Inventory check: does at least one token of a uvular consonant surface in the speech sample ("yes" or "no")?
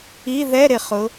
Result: yes